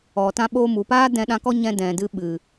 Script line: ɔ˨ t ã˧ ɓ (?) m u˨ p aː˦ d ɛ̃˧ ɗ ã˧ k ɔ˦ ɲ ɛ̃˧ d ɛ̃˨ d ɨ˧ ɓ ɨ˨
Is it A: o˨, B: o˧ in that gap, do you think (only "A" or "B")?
B